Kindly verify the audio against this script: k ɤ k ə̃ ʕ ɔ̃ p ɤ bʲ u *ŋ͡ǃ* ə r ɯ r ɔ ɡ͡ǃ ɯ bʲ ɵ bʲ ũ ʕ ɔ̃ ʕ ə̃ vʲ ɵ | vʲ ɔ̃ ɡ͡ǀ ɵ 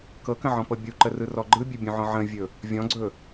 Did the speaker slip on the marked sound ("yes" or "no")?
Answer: yes